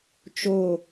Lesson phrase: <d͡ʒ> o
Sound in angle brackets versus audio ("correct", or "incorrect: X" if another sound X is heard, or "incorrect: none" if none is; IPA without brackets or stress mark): incorrect: t͡ʃ